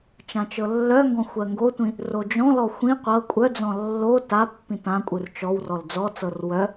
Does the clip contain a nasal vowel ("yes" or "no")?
yes